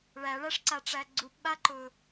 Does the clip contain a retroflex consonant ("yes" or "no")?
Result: yes